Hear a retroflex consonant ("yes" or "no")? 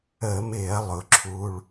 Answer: yes